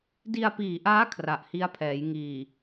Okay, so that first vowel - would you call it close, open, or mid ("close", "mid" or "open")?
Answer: close